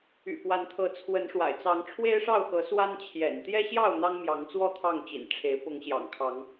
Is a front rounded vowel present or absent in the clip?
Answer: present